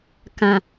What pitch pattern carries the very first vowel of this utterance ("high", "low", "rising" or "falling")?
low